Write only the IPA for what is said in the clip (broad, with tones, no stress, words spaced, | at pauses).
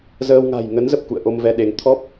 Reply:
zəː˧w ŋa̤˨˩jŋə˨˦nzə˨˩p̚kṵ˧˨ə̯ ʔo˧mvɛ˧ɗe˨˦ŋ t̪ʰɔ˦˥p̚